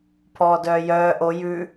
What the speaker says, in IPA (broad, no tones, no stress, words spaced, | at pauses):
pʰɔːdœːjœː ʔo jʉ